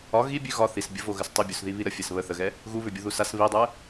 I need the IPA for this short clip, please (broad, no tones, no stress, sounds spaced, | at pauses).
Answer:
ɒ ɣ i bʲ ʉ ɣ ɒ θ i s bʲ ə v o ɣ ə s tˤ i bʲ u s ð i β i ɾ ə fʲ ɛ s β ə θ ə ɣ ɛ | ɣ u β ʏ bʲ u ð u s a s β i dˤ ɛ